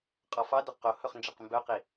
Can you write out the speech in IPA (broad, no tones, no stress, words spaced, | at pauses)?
qʼɔfɑdɵ qohɵχ nd͡ʒɛqmbœqi